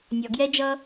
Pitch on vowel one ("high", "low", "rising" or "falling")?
low